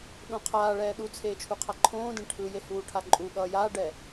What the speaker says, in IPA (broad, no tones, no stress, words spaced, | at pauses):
ɗõqʰaːɭɛː ɗut͡sʰeːt͡ʃʰuqʰa ǃʰõːdẽ ʈʰɯ jehuːʈʰaǃʼu ɠʌːjaːɖɛ